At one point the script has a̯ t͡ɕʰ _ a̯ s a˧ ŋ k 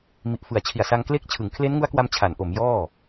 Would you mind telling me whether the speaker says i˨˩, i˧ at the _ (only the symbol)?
i˨˩